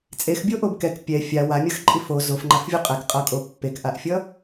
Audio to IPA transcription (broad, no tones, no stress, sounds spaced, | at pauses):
t͡sʼ e x bʲ o ʔ o b k ɛ k pʲ ɛ fʲ a w a mʲ ʌ x ǃʼ i f o z o f ŋ͡ǃ a f vʲ o qʼ ɛ k qʼ ʌ kʼ o pː e k ʔ a ʔ fʲ ʌ